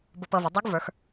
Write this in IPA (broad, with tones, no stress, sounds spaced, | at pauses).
b ʊ˧ p ɤ˧ v ʊ˩˧ dˤ u˧˥ ɡ v ə˞˩˧ x